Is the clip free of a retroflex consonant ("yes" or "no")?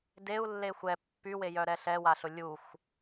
yes